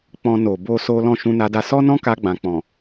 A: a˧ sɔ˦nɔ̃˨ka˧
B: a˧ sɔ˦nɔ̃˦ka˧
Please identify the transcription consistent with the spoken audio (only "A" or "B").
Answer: B